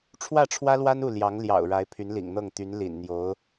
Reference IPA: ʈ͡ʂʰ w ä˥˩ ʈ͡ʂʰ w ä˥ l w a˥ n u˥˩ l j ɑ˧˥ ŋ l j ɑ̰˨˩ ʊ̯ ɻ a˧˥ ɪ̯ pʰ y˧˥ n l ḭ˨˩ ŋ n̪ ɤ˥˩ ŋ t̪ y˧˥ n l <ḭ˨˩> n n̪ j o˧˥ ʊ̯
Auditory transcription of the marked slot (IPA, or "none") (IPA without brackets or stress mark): ḭ˨˩